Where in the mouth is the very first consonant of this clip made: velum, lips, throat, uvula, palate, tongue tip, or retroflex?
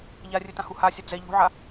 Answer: palate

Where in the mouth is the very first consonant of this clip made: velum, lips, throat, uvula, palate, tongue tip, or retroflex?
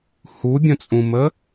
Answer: throat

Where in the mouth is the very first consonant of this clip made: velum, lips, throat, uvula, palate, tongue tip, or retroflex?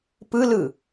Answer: lips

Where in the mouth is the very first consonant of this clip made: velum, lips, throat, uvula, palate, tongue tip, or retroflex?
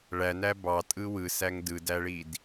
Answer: retroflex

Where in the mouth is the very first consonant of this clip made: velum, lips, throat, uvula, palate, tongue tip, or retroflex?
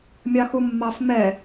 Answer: lips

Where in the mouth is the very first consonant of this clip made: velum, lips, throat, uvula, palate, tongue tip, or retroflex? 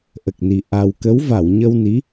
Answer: throat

